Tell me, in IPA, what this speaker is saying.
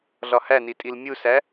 ɮ ɒ h æ n i tʼ i l mʲ u s æ

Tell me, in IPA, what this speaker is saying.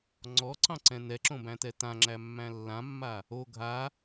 ŋ͡ǀ ɔ ǀ ɑ̃ ǀ ɛ̃ n ɛ ǁ õ b æ̃ t ɛ t ã ŋ͡ǁ æ mː æ̃ lː ã mː a | o ɡʱ a

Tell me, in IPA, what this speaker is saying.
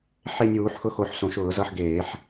ħ e˦˨ nʲ uː˧˩˧ ħ x ʊ˦˨ x o˧˩˧ ħ s õ˧˩˧ ʃ ʊː˧˩˧ z ʌ˦˨ ħ ɡ eː˧˩˧ ħ

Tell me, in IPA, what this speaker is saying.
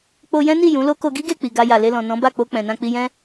k͡p o˧ j ɛ̃˦ n i˦˨ j ũ˨˦ l o˦ k o˧ ɡ i˦ ɡ e˦˨ k͡p i˨ ɡ a˧ j a˨ l e˧ l ɔ̃˨ n ɔ̃˨˦ b a˦˨ k͡p o˧ k͡p ɛ̃˨ n ã˧ k͡p i˧ j ɛ̃˦

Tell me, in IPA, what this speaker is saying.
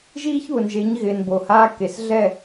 ʒ iː˦ ç β ʊ˨ n ʒ e˨˦ ɲ ɣ ɪː˨ n b o˨ h aː˦ k e˨ s ɮ ɛ˦˨

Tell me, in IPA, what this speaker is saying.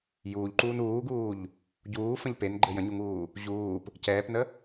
j uː ʎ ǃ uː n uː ɡ uː ʎ | ɟ uː f ə̃ ʎ p e n ɡ͡ǃ ɘ j ə̃ ɲ u ŋ uː | ʑ uː p | c ɛː p n ə

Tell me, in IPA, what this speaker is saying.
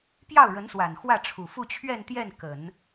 p j ɑ˥˩ ʊ̯ ɻ ə˧˥ n s w a˨˩ n x w ä˥˩ ʈ͡ʂʰ u˨˩ f u˥˧ t͡ɕʰ ɥ ɛ˥˧ n t̪ j ɛ˥˩ n k ə˨˩˦ n

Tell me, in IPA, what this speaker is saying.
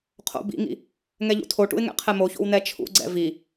qʰ o̰ b ḭ ŋ ḭ | ŋ ɛ ʎ ṵ tʰ o ʈ ṵ ɪ̯ ŋ ɛ̰ qʰ ɛ m o ç o̰ w n ɛ t͡ʃʰ ṵ ɡ͡ǀ ɛ̰ v i

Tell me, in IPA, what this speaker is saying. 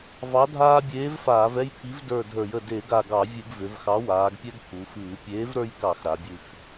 v ɑ˨˥ dʱ aː˦ bʲ eː˨˥ v f aː˧˩˧ v ɛ˦ j pʰ i˨˥ v d ə˞˧˩ dʱ ə˞˧˩˧ j ə˧˩ d e˧˩˧ ɡ a˧˩ ɡ ɑ˧˩˧ vʲ ɨ˧˩˧ ɡ v ʏ˩˧ v x ɑ˨˥ w aː˩˧ ɡ pʲ ɛ˦ ɡ pʰ u˩˧ f ɨː˧˩˧ pʲ eː˨˥ v ɾ ə˞˦ j k ɑ˧˩˧ x ɾ a˩˧ bʲ ɨ˧˩ x

